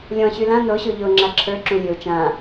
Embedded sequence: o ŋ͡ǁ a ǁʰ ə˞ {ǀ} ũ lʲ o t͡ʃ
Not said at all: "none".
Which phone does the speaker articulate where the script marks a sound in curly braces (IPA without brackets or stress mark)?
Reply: ǁ